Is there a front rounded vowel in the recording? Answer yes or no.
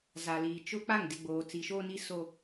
no